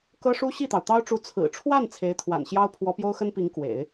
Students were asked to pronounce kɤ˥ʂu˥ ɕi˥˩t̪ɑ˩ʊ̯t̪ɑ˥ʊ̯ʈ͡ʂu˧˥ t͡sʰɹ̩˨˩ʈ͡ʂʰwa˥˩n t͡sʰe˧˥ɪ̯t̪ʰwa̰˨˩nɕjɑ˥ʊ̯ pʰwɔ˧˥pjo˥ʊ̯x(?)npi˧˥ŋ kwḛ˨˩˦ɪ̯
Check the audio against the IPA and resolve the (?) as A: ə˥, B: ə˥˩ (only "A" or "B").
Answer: A